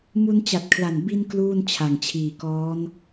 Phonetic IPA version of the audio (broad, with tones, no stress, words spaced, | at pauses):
mu˧n t͡ɕa˨˩t̚kʰla˨˩n bi˧n kluː˥˩n t͡ɕʰa˨˩ŋt͡ɕʰiː˨˩kɔː˦˥n